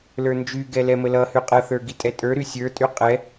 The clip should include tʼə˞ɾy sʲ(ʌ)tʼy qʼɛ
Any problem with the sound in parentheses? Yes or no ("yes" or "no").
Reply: yes